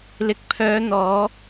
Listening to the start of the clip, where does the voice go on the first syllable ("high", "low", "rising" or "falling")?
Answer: low